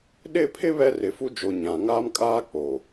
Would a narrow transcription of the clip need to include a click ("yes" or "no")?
no